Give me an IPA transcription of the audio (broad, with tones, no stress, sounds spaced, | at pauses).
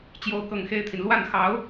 t͡ɕ j o˥˧ ʊ̯ k ɤ˥˩ ŋ x e˥ ɪ̯ t̪ʰ i˨ n l w a˥˩ n x ɑ˧˥ ʊ̯